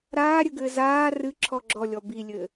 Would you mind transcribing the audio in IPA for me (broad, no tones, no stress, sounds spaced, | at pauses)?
ɾ aː ɾʲ ɘ ɡ ɘː z aː r ɨ ǁʰ ɔ ɡ͡ǁ ɔ lʲ ɔ b i lʲ ɘ